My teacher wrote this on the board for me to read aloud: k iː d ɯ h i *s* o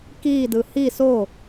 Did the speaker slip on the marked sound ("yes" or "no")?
no